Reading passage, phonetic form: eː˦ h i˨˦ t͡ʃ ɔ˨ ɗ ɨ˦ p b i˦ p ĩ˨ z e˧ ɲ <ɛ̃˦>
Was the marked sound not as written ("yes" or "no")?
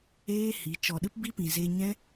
no